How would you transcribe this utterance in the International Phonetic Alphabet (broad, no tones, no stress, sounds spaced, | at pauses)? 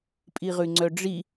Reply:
pʼ i ʁ ʉ ŋ͡ǀ œ ɖ͡ʐ i